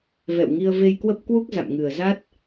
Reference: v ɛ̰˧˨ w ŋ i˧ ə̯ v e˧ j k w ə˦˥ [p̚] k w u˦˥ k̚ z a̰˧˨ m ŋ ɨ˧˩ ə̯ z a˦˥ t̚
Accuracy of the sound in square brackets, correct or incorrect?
correct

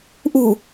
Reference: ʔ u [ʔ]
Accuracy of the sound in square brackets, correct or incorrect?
incorrect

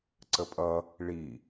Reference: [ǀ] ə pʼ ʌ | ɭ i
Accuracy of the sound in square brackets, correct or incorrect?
correct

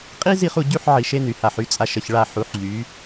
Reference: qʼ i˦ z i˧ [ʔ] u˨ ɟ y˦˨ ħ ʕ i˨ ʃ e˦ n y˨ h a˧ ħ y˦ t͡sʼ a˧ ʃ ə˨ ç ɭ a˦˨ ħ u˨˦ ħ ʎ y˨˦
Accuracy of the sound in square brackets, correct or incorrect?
incorrect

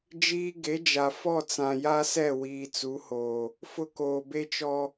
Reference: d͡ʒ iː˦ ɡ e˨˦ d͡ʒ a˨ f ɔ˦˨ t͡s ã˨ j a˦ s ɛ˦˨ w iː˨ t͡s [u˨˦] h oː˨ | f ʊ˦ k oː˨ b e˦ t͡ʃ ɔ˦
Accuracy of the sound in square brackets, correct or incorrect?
correct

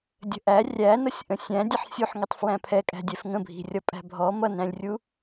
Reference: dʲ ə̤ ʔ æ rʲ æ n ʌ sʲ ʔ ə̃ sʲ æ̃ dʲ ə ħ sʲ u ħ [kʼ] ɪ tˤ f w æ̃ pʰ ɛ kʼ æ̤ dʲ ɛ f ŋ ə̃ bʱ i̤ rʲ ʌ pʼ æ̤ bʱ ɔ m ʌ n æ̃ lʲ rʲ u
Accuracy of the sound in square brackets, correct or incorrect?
incorrect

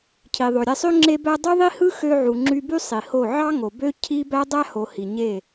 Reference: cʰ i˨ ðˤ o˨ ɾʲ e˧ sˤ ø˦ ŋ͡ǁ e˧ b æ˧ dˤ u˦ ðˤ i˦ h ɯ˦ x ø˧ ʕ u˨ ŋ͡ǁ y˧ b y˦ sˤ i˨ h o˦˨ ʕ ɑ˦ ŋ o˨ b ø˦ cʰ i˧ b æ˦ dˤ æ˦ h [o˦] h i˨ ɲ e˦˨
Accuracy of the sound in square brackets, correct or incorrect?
incorrect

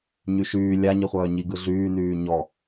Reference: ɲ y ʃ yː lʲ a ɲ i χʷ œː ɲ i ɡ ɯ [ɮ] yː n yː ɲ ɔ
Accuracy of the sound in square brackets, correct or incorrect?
correct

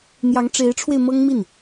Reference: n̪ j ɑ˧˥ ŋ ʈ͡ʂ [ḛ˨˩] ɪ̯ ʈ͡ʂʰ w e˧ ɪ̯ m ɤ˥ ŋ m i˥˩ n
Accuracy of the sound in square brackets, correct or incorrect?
incorrect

